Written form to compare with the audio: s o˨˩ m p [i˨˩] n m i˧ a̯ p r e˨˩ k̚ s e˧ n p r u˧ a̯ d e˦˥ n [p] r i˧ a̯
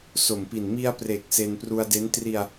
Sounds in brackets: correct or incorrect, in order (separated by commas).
correct, incorrect